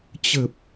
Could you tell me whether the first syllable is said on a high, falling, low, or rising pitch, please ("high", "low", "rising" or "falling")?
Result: low